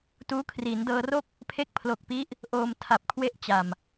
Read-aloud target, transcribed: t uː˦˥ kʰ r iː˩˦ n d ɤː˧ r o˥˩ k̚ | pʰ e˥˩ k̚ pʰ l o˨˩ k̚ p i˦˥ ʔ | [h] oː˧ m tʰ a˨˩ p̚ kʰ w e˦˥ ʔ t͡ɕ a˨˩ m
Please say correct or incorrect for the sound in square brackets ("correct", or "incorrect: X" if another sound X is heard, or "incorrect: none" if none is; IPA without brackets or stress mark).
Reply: incorrect: ʔ